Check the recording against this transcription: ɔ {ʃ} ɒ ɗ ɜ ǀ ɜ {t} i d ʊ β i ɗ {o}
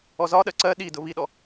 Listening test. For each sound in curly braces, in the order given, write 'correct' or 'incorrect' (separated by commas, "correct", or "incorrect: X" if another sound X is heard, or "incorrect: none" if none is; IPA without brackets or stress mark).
incorrect: z, incorrect: ɗ, incorrect: ɔ